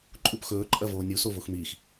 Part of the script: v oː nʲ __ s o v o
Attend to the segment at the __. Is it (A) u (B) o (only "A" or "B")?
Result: A